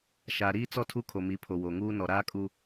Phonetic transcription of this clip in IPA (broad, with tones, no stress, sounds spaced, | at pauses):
ʃ aː˨ ɾ iː˦ t͡s ɔ˦ tʰ u˦ kʰ o˨ m i˨˦ pʰ o˨ w o˨ ŋ uː˦ n ɔ˨ ɾ aː˦ kʼ u˦